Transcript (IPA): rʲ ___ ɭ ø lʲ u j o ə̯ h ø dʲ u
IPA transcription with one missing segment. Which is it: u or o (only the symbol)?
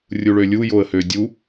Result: u